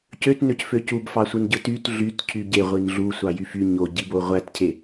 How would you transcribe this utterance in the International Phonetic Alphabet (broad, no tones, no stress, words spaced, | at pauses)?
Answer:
cøtnøcfø cubfɑsʷɯn ɟɯtyt ɮyt cʰyɟeʁʷin ɮusʷɑ jyfy ɲoɟibo ʁʷætcʰe